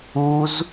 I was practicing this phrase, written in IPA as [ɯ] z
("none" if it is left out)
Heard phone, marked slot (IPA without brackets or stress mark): u